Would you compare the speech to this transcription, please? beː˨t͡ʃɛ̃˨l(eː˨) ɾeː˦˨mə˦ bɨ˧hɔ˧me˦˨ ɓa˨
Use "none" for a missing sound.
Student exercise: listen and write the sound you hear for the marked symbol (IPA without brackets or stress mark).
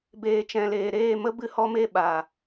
eː˨